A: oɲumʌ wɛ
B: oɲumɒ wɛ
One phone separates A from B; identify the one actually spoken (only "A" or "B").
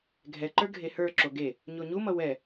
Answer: A